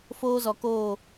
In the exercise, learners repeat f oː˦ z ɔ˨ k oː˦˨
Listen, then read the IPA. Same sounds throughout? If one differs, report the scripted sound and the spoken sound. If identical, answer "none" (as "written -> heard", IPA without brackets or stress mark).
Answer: none